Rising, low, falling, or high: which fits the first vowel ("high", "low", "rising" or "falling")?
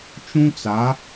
high